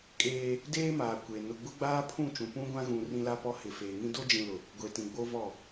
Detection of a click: absent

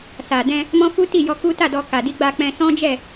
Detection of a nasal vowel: present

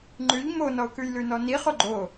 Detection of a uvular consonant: present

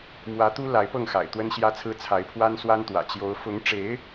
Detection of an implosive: absent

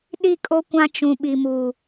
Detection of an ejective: present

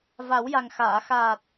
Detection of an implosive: absent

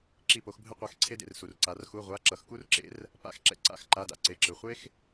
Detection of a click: present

